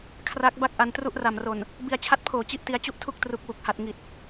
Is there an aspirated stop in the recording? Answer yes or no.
yes